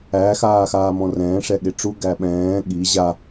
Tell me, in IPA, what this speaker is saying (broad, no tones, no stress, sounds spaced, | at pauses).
æ x aː x aː m ɔ̃ r ɛ̃ː ʂ ɛ ɠ e ʈ͡ʂ u ɡ æ ɓ ɛ̃ː ɠ i ʑ a